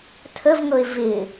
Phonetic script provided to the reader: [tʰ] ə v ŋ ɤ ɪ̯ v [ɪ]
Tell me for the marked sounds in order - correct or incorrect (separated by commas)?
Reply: correct, correct